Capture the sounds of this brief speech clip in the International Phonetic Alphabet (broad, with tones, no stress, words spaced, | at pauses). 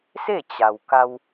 se˥˨t͡ɕa˩wka˧w